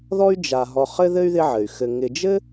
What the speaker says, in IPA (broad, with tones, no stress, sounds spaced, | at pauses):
ð ɔ˦ y̯ d͡ʒ a˨ ɦ ɔ˨ χ ɘ˥ ð ɘ˥ y̯ ð ɪ˦ ʕ ɘ˩ y̯ x ɘ˨ ŋ ɪ˨ d͡ʒ ɘ˥